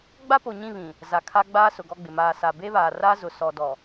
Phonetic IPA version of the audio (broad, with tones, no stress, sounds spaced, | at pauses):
ɡ͡b a˦ p o˨ ɲ ĩ˦˨ β ĩ˨ | z a˨ kʰ a˦ ɡ͡b aː˦ s ʊ˨ ɡ ɔ˦ ɡ͡b ɪ˨ m aː˨ s a˨ b e˦ β aː˨ r a˦ z ʊ˨ s ɔ˨ d ɔ˨